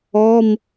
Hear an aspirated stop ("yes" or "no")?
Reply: no